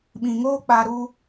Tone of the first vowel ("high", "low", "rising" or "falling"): low